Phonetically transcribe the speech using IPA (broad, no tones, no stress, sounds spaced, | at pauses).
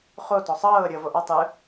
χ o t ɔ sˤ ɤː ɾʲ ɤ v o ʔ a tˤ ɯ